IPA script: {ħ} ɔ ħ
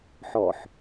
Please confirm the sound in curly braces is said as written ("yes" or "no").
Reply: yes